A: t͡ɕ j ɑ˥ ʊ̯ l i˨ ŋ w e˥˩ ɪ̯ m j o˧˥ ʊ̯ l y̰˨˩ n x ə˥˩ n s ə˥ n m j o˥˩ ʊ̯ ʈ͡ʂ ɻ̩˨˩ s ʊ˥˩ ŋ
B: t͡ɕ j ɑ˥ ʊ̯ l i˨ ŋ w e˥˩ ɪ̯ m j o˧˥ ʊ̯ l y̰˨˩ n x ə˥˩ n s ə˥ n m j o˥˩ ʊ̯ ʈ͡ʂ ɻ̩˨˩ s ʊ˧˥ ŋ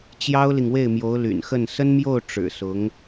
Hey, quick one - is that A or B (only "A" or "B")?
B